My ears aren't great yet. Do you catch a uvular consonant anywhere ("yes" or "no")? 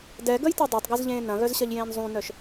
no